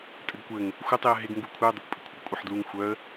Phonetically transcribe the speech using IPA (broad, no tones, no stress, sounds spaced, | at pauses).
tʼ ɘ ɡ kʷ ɘ ŋ | xʷ ɪ tˤ i ə̯ ɦ ɪ ɡ ŋ ɡ u kʷʰ œ dˤ ɪ kʷ pʼ ɪ kʷʰ ɪ ɡ kʷʼ ɪ ħ d l u ŋ xʷ œ ə̯